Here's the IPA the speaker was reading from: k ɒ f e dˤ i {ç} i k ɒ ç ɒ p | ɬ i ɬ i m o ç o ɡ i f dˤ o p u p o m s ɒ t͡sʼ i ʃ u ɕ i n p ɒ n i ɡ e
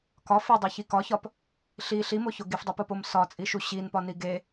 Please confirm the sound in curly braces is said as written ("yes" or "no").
yes